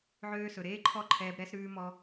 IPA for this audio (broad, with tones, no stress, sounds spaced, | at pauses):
ʕ øː˧ s ɵ˨ ɾ eː˦ ǃʰ ɔ˦˨ ǃʰ ɛː˧ b ɾ ɛ˦ s ɾ ʉː˦ m ɔ˦